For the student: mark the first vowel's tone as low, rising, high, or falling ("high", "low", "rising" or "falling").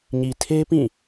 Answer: low